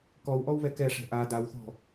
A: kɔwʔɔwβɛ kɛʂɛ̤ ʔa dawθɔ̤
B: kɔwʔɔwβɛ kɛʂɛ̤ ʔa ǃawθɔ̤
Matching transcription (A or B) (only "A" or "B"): A